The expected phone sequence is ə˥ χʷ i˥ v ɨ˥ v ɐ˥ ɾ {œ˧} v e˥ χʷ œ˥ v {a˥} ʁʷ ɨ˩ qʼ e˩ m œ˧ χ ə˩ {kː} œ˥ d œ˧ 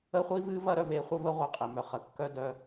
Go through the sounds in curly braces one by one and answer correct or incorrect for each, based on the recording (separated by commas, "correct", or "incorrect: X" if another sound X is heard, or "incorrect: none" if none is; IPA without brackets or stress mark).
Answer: correct, incorrect: ə˥, correct